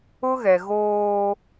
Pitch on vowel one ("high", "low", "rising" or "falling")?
high